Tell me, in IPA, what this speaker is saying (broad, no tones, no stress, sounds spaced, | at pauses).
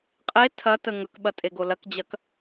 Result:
qʼ e tʰ ɐ t ə ŋ ɵ k ɓ ɐ tʼ e ɡ o l ɐ k d͡ʑ ɐ k